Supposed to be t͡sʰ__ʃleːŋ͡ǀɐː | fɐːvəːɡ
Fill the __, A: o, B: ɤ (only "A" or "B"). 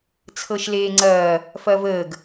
B